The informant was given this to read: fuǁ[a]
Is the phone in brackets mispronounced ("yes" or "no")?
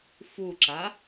no